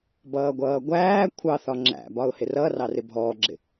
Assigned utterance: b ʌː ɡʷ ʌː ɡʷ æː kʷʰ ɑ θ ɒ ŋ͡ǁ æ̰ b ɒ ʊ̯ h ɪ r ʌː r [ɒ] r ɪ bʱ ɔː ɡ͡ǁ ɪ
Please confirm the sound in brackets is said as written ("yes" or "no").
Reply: no